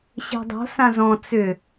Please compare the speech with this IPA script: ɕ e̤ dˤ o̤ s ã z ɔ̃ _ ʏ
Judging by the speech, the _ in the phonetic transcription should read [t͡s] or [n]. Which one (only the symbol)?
t͡s